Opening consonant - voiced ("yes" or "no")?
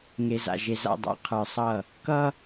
yes